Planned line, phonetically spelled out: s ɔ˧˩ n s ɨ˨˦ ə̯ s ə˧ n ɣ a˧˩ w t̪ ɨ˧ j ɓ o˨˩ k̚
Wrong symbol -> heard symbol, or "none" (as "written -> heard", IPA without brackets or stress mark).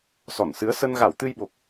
none